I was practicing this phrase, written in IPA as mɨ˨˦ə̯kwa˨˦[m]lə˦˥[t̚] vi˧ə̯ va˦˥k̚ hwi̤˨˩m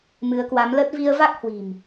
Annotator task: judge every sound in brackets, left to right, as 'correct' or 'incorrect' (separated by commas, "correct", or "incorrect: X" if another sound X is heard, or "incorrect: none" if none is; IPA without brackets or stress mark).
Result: correct, correct